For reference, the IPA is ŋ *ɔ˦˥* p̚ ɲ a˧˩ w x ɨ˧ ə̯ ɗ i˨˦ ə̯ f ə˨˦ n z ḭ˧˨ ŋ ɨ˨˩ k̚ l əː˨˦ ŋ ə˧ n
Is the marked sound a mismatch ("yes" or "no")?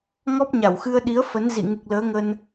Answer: no